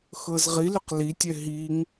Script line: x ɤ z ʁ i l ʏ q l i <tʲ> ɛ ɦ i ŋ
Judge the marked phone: correct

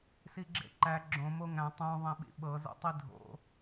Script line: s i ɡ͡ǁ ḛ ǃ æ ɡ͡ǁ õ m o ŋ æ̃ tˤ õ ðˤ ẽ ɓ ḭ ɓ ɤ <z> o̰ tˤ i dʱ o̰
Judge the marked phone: correct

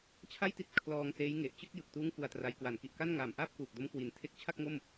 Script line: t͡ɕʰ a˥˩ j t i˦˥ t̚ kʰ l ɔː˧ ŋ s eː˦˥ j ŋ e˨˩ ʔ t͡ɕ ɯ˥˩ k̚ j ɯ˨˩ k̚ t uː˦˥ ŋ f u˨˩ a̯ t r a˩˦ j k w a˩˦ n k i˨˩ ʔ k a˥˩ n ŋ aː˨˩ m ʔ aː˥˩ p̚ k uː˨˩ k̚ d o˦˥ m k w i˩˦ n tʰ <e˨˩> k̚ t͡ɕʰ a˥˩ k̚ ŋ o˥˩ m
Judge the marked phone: incorrect: e˦˥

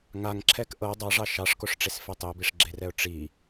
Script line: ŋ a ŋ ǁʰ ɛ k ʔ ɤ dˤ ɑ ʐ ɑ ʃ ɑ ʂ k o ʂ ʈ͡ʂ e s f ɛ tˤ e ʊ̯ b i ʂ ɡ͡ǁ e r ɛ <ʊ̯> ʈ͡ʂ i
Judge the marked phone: correct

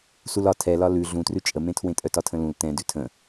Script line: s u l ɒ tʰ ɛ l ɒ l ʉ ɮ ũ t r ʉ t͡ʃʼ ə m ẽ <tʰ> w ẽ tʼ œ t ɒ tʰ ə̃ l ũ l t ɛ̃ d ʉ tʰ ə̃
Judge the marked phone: correct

